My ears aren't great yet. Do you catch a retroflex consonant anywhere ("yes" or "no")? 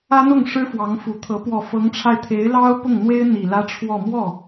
yes